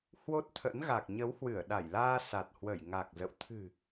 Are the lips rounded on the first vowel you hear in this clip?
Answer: yes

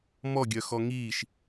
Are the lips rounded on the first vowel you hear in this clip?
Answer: yes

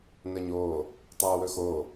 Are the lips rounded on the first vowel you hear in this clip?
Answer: no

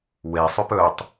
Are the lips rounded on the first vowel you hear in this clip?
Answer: no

